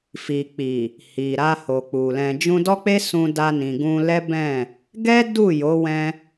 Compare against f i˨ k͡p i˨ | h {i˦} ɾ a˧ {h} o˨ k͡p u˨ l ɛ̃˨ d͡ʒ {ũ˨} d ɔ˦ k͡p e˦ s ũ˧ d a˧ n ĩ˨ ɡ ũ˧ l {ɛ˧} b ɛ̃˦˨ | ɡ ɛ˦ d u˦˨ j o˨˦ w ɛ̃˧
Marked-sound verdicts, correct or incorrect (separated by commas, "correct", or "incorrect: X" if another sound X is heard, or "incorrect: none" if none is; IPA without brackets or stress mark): incorrect: i˨, correct, incorrect: ũ˧, incorrect: ɛ˦